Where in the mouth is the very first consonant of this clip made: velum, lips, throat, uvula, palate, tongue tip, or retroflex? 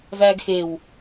lips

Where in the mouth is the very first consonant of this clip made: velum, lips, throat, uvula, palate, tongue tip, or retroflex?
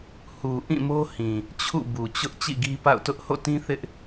throat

